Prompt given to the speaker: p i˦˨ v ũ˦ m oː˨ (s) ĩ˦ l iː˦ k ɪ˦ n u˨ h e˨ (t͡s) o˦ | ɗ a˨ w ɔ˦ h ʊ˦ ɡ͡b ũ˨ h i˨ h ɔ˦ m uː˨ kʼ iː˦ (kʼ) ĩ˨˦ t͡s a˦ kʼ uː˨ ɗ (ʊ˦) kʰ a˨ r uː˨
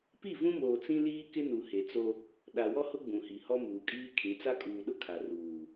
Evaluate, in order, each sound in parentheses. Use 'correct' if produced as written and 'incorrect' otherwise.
incorrect: t͡s, correct, incorrect: kʰ, correct

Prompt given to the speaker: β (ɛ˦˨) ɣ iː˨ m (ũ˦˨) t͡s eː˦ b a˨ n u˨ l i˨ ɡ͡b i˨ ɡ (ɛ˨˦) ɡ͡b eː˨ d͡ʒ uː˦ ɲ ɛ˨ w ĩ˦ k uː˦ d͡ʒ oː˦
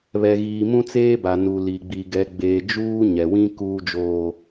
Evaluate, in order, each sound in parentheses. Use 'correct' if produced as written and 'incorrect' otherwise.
incorrect: ɛ˨, incorrect: ũ˦, correct

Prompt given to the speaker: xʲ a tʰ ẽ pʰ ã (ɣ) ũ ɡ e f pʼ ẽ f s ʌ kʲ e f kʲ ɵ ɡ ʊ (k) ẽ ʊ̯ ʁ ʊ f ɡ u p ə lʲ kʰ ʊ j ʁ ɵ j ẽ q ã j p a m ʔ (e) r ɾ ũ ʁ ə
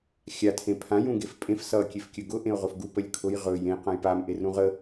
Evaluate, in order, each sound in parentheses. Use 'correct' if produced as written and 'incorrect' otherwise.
incorrect: j, incorrect: ʔ, correct

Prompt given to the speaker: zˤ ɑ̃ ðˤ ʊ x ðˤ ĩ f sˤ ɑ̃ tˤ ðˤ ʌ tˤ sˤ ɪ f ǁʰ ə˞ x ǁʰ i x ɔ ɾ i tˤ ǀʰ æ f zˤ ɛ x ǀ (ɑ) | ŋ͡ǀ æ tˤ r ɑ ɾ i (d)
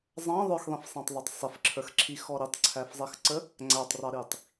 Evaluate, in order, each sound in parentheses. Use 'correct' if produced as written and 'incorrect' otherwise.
incorrect: ə, incorrect: tˤ

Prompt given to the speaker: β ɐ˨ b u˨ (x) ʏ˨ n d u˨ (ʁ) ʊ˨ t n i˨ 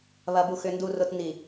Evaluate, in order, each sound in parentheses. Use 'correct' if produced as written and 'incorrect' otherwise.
correct, incorrect: r

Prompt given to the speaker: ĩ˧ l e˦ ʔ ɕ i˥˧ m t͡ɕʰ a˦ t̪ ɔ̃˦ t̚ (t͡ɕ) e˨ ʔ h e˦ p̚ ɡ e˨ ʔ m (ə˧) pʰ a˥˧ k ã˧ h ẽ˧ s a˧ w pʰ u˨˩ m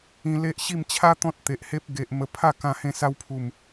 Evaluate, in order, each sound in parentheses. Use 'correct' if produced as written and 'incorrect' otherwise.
incorrect: t̪, correct

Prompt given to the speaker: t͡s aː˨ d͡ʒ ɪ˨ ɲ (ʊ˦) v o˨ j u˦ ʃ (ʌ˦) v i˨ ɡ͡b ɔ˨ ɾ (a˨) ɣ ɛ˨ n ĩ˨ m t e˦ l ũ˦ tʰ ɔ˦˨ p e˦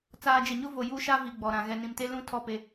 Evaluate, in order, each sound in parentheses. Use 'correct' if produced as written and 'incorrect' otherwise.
correct, incorrect: a˦, incorrect: ã˨

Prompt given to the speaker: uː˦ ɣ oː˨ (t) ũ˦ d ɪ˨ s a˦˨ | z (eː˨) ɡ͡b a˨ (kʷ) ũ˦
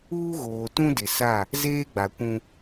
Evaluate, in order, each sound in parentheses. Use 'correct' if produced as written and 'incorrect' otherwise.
correct, incorrect: eː˦, correct

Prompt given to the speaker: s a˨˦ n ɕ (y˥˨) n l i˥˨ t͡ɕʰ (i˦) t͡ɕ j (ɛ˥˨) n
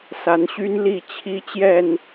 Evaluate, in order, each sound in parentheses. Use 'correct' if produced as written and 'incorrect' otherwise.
incorrect: y˦, correct, correct

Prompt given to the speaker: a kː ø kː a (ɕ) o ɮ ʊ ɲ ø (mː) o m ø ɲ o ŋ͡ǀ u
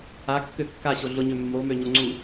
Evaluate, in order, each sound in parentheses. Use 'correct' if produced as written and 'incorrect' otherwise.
correct, correct

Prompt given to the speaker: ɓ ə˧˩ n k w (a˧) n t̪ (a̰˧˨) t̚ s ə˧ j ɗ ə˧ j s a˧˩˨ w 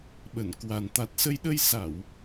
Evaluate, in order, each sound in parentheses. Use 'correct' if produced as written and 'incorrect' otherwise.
incorrect: a˨˩, incorrect: a˨˩

